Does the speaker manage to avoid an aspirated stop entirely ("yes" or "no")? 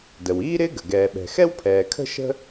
no